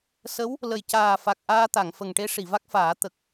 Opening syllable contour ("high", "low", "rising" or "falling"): rising